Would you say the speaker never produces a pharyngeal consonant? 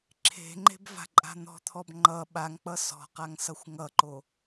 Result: yes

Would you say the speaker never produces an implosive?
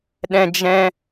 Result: no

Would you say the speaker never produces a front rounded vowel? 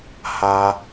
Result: yes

